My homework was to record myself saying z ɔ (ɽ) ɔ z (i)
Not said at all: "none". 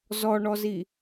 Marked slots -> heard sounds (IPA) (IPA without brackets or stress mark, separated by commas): ɳ, i